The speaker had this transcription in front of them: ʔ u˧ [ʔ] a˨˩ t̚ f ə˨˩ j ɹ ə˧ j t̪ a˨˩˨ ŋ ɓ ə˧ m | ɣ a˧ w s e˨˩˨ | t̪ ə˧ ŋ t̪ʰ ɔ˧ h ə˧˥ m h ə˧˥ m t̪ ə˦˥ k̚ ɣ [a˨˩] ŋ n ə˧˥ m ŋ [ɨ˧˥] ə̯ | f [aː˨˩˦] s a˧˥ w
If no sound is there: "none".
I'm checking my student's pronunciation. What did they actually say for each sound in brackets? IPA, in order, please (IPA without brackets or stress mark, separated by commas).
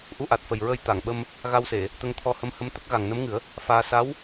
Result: ʔ, a˨˩, ɨ˨˩˦, aː˧